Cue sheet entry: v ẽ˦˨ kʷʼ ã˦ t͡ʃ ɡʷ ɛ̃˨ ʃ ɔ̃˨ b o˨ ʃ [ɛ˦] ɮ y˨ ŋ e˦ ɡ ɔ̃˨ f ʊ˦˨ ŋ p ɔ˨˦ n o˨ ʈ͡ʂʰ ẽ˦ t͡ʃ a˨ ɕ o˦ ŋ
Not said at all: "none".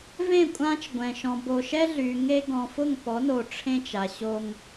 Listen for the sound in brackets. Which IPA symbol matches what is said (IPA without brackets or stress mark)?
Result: ɛ˦